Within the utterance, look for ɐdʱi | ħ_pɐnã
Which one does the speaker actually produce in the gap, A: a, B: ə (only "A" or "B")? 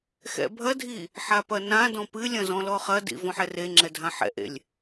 A